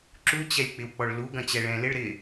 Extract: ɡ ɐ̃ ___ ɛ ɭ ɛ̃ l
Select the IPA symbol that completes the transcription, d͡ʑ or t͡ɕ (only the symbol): t͡ɕ